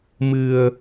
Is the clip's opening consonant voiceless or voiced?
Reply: voiced